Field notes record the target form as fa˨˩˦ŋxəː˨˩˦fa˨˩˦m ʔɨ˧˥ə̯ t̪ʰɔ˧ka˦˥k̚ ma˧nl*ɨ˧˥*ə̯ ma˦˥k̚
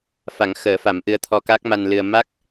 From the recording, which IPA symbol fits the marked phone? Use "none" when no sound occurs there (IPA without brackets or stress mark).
ɨ˧